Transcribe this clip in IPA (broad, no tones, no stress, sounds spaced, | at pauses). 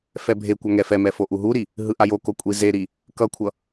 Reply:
f ɛ bʱ e kʷ a ŋ ɛ f ɛ m ɛ f o ʔ u ɦ u ɾ i | ɦ ɯ ʔ a j o k o kʷʼ i z e ɾ i | k ʌ kʷʰ ʌ